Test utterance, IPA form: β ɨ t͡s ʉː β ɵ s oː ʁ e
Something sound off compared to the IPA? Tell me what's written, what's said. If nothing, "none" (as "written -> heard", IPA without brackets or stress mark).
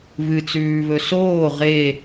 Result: none